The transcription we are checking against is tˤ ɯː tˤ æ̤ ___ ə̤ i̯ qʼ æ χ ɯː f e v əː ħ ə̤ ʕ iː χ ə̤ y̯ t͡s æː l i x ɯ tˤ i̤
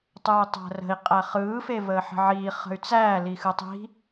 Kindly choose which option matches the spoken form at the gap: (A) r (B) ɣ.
A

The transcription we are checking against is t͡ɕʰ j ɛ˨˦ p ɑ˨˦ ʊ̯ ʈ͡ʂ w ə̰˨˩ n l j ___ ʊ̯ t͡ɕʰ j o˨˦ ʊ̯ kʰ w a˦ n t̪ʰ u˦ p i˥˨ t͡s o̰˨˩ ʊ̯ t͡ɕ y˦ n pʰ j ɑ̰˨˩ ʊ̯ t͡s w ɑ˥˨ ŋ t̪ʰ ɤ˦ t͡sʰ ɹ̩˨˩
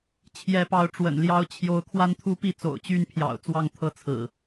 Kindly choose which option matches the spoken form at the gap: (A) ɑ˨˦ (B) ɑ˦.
B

